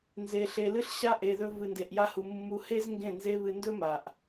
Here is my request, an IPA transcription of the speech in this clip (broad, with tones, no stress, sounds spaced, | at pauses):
n z e˧ ɬ e˧ l ɨ˦ ɬ ɕ a˦ ʔ e˧ ð ɵ˦ v ɨ˧ n d e˧ ʔ j a˦ h u˧ mː u˧ h e˦ z ŋ ɡ ẽ˦˨ n z e˦ β ɨ˧ n d ɵ˦ m a˨ ʔ